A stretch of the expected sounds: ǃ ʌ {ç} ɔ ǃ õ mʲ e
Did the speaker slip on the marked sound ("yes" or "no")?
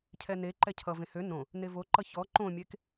no